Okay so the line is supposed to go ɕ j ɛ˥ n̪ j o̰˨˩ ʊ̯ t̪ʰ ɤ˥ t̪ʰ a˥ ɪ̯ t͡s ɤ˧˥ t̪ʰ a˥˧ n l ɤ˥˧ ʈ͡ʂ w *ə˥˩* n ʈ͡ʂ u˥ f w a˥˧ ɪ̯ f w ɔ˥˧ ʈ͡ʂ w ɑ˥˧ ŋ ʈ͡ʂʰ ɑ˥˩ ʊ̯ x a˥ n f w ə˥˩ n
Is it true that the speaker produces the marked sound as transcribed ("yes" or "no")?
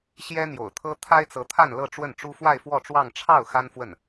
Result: yes